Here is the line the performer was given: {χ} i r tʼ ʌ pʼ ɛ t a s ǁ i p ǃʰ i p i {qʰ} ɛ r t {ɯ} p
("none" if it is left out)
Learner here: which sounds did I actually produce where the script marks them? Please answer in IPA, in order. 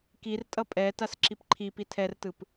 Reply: k, tʰ, ɯ

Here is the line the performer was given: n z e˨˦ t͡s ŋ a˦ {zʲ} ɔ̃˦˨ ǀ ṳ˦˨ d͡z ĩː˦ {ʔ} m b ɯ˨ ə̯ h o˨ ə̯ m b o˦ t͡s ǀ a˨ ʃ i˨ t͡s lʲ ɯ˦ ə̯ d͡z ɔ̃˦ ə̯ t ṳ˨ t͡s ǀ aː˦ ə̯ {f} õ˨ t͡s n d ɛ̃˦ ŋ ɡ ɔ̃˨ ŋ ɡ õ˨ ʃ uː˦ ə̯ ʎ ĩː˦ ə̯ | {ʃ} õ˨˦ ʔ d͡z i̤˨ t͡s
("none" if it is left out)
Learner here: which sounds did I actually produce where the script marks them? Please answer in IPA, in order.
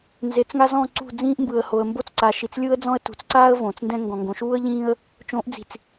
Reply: z, ʔ, v, t͡ʃ

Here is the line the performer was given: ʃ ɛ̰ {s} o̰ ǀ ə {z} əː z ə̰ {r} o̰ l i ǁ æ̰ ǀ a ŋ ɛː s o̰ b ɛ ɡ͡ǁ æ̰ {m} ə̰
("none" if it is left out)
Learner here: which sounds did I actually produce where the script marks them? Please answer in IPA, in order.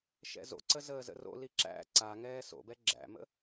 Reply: z, z, r, m

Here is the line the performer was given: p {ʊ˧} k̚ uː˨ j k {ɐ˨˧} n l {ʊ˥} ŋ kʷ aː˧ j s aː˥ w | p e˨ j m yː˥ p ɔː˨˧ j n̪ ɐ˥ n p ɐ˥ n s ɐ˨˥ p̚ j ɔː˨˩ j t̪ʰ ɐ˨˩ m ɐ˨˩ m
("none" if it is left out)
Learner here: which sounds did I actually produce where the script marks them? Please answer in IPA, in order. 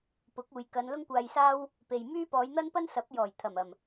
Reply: ʊ˨˥, ɐ˨˧, ʊ˥

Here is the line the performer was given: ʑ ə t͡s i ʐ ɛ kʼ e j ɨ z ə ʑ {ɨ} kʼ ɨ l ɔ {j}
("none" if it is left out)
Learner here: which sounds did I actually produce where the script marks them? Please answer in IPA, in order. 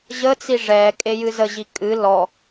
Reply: i, none

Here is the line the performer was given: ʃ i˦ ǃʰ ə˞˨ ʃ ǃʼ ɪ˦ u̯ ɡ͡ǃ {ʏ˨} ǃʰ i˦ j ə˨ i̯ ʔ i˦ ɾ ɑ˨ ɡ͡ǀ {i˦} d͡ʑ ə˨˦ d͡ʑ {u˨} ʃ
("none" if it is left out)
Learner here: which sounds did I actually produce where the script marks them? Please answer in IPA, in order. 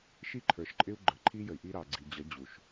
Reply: ə˨, i˨, u˨

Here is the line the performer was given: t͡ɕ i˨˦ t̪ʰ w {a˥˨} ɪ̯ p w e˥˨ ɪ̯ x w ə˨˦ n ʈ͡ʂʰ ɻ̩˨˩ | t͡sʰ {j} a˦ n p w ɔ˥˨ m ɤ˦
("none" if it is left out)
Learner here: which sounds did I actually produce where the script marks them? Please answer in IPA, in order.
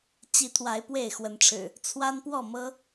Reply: a˨˦, w

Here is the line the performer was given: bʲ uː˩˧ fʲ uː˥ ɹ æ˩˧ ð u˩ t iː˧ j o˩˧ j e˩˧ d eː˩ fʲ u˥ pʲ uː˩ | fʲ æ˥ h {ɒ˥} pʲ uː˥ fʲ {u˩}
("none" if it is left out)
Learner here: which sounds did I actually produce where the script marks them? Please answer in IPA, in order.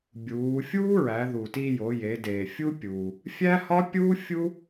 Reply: ɒ˥, u˥

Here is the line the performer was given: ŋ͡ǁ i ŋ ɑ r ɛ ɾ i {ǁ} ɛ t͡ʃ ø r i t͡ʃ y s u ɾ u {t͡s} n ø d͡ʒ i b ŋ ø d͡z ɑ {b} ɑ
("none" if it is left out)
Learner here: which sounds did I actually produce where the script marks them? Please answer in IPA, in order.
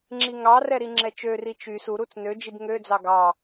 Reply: ŋ͡ǁ, t͡s, ɡ

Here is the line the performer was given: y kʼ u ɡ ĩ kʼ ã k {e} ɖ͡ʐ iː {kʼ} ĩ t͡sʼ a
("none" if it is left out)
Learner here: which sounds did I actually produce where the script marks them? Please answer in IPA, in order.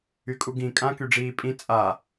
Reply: y, pʼ

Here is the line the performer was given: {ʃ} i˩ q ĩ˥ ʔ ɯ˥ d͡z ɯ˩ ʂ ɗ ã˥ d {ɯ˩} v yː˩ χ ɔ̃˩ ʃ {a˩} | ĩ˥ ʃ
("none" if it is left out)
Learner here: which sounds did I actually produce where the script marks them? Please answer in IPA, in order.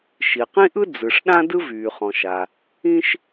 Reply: ʃ, ɯ˥, a˩

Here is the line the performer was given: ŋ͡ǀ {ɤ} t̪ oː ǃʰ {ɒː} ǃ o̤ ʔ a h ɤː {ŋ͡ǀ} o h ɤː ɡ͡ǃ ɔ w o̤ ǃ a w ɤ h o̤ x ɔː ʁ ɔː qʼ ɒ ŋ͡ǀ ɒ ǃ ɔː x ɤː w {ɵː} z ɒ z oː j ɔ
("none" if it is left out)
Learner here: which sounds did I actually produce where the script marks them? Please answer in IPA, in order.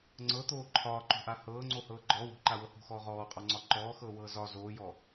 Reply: ɤ, ɒː, ŋ͡ǀ, ɤː

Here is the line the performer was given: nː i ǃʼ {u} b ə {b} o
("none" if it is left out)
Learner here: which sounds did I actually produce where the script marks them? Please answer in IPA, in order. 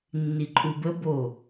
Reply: u, b

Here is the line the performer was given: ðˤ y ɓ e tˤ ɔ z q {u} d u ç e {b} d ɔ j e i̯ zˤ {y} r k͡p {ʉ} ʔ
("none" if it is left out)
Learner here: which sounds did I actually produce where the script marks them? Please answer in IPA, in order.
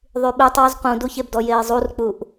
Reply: ũ, b, u, u

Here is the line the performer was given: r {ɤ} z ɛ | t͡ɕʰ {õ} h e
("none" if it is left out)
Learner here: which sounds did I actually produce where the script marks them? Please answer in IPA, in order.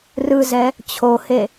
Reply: ɯ, o

